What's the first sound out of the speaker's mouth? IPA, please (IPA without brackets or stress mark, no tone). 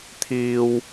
t̪ʰ